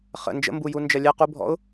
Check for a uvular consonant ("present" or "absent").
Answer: present